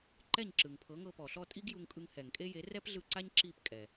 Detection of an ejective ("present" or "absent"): present